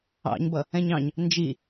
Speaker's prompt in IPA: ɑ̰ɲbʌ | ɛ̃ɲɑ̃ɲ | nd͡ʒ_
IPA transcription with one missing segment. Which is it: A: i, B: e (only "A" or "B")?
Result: A